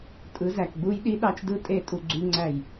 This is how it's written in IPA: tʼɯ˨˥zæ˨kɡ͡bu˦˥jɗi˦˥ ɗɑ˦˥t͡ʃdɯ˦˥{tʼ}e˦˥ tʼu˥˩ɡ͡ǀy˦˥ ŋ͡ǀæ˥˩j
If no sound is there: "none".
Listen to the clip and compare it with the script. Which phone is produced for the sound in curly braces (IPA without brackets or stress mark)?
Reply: tʼ